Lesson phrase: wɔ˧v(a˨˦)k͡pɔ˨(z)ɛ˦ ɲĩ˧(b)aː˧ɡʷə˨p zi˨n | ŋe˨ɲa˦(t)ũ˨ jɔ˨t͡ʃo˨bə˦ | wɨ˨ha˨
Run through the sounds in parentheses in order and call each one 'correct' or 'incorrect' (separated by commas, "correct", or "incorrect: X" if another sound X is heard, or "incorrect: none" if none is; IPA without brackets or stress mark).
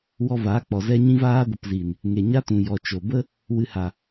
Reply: correct, correct, incorrect: v, correct